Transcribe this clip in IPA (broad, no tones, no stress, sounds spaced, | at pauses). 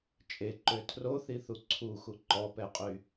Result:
t͡ʃʼ e ǃ ø tʰ r o θ i θ u ǀʰ u x u ǃ ɔ p ɛ qʼ y